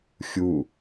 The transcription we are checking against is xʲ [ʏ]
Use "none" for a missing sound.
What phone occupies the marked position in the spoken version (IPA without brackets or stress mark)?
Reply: u